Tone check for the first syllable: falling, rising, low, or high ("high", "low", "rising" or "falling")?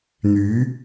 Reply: rising